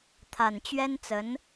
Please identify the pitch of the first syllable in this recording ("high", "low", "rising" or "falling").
low